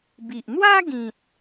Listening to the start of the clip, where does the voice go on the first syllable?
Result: low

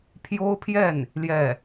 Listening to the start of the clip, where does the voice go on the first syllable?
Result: high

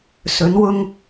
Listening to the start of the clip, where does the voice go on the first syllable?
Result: rising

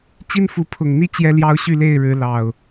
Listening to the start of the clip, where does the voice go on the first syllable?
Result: high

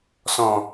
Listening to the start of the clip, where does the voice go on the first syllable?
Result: low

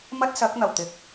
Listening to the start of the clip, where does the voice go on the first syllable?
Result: high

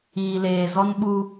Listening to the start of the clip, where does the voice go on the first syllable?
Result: low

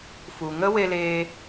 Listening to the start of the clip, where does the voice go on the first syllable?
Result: low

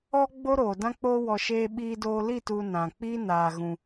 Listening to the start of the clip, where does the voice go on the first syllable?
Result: high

